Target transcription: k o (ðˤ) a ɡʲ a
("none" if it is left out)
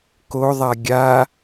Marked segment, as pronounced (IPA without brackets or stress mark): ðˤ